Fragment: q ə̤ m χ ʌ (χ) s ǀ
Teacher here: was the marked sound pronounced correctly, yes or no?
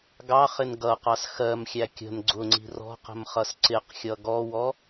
no